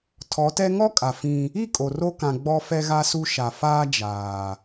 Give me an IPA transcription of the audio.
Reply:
tʰɔ˨˦tɛ˦ ŋɔ˦kʼa˨ fĩ˦ | i˦˨ kʼo˨ro˦kã˨ ɡ͡bɔ˦fɛ˦ ɣa˦su˦ ʃa˨faː˦ d͡ʒaː˨

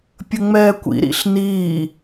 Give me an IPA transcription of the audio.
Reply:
pʲəŋ͡mɛːkʷḭ ɾḭɬniː

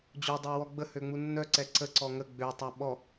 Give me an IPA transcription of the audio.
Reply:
d͡ʑodˤewɔ ɡ͡bəhøŋ͡mu nːœǀɛ ǀəǀɔ ŋə ɡ͡bøtˤa ɓɔ

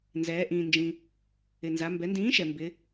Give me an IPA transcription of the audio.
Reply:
nzɛː˩˧ ʔĩː˩nd͡ʒĩ˩ | ɪ˩nza˩˧ mbɛ˩˧ndĩː˨˥ʃɛ˩ mbɪ˩˧

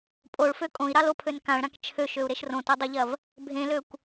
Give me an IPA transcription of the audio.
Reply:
pʼoɭfø kʼõi̯ɾɑlopʰøn kãɭɾãk t͡ʃʰøʃøu̯ɾeʃ rõtodˤoʎɐv | bʱẽløkʷ

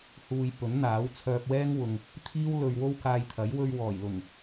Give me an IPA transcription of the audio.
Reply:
huː˧j pɵ˨˥nn̪aː˨˥wt͡sʰœː˧p̚wɛː˥ŋ wʊ˨ŋ | t̪ʰiː˥w lɵ˨ɥ wo˥wkaː˧jt̪ʰɐ˨˥j wɵ˧ɥwɔː˨˩jlʊ˨˩ŋ

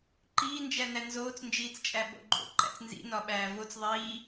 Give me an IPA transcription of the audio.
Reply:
ǃiː nd͡ʒænænzoːt͡s nd͡ʒiːt͡st͡ʃʼæɓo̰ɡ͡ǃo̰ ǃæ̰t͡snzḭ nɒɓæːvot͡s ðˤiː

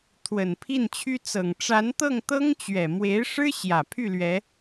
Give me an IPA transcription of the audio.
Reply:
t̪ʰwə˨˩npʰi˥˩nt͡ɕʰy˥ t͡sɤ˨˩ŋ ʈ͡ʂa˧˥nt̪ɤ˥˩ŋt̪ɤ˥ŋt͡ɕɥɛ˨˩ mwe˧˥ɪ̯ʂɻ̩˥ ɕjä˨˩pʰy˥˩ lɥɛ˧˥

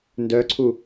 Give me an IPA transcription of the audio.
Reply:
ndœǀʰu

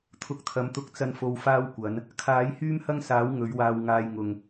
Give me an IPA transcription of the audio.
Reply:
t̪ʰʊ˨˥k̚t̪ʰɐ˨mt̪ʊ˨˥k̚ t͡sɐ˧nfo˨w faː˥wkʷɐ˨˥n | kʰaː˨˥jhyː˥mhɐ˥ŋsaː˨˥w ŋɵ˨˥ɥwaː˧wŋaː˧jŋʊ˨ŋ

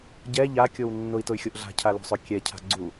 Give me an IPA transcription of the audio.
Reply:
ɟɛ ʎakʲow nːʊi̯tʊy̯xʲoʔ ɮa̤cʰalo̤sˤø kʲɛcʰa̤ ɡ͡ǀu

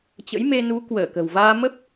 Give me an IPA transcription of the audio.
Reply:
t͡ɕə̰˧˥jme˧nu˨˦ kwəː˧˩kə̤˨˩wvaː˧ mə˦˥p̚

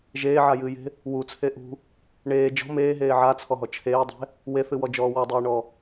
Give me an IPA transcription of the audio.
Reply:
ʒeːʕajɨːje̤ | wut͡sʰe ʔṳ | ɳeː d͡ʒɔ̤ meːɦeː ʕat͡sʰɔɦɔ t͡ʃʰeːdˤe̤ | weθɨwɔd͡ʒɔː wɔdˤɨːɳɔ

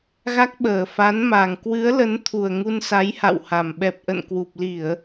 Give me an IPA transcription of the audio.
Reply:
ɣa˦˥k̚ɓəː˨˩ fa˨˦nma˨˩ŋ kwɨ˨˦ə̯lə˨˦nt̪ʰu˨˩ə̯ ŋu˧nsa˨˦jha̰˧˨wha˨˩m ɓɛ˨˩p̚ʔə̰˧˨nkwu˨˩p̚li˧˩˨ə̯

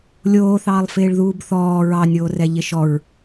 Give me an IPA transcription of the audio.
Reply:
lʲoːθɑːlˠ fɪːɭðuːbθɔː ɹɑnʲoːrɛ ʎɪʃɔɹ

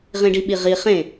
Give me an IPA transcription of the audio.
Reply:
ʁĩɖiɓiʁi χẽ

